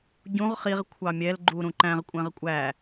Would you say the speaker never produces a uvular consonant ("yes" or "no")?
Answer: no